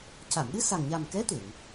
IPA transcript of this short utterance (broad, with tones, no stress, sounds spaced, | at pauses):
c a˨˩˨ m ɗ ɨ˧ s a˨˩ ŋ ɲ a˨˩ m k ɛ˧˥ t̪ e˨˩˨ ŋ